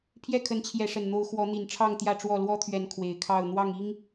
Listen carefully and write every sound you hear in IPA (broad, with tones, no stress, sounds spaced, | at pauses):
pʰ j ɛ˥˨ kʰ ə˨˦ n t͡ɕʰ j ɛ˨˦ ʂ ə˨˩ n n̪ o˨˦ ʊ̯ x w ɔ˨˦ n̪ i˨˩ n ʈ͡ʂʰ ɑ˥˨ ŋ t̪ j ä˥˨ ʈ͡ʂ w ɔ˥˨ l w ɔ˦ t̪ʰ ɥ ɛ˨˦ n kʰ w e˨˩ ɪ̯ kʰ ɑ˥˨ ʊ̯ n̪ w ɑ˥˨ ŋ i˦ ŋ